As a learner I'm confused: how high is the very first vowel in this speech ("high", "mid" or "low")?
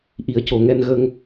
high